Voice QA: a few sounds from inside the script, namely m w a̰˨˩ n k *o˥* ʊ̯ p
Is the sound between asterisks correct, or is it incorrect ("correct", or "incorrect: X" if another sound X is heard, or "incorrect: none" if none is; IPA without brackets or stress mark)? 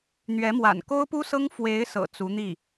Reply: correct